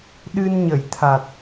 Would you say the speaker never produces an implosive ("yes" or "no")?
no